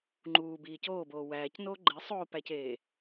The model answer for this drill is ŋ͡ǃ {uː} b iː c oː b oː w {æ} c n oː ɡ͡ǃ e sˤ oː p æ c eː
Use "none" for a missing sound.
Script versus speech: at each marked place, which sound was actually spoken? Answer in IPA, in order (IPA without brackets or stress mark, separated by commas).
uː, æː